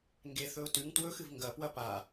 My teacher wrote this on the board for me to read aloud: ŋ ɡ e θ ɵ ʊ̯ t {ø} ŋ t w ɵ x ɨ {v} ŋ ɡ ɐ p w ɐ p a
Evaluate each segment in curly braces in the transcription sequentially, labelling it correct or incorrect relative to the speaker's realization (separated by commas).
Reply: incorrect, correct